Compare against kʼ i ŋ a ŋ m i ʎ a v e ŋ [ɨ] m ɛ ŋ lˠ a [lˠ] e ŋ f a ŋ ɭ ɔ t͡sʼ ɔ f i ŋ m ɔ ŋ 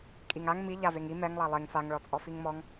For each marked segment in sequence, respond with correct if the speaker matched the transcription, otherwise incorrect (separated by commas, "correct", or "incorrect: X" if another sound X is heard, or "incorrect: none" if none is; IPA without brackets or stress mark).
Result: incorrect: i, correct